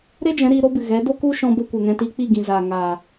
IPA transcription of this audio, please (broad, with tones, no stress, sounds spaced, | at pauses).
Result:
ɾ e˦ d͡ʒ ɛ̃˨˦ ɾ iː˧ ɾ o˦ b ɨ˨ ɣ ɛ˨˦ d o˦ k u˦ ʃ ɔ̃˧ b ə˧ kʷ ɛ˨ ŋ ɛ̃˧ t iː˧ k͡p i˦˨ ɡ ĩ˨ z aː˨ ŋ aː˨